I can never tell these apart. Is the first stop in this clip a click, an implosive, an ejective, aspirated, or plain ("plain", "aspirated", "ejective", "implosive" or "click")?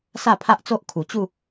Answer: aspirated